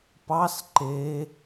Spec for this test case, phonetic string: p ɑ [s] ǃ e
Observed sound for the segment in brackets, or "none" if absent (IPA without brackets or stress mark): s